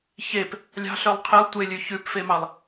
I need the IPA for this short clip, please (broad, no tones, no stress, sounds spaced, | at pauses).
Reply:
ç e p | lʲ ɑ̤ ɬ œ lˠ qʰ e lˠ tʷ e lʲ ʉ ç ʉ p f e m ɑ lˠ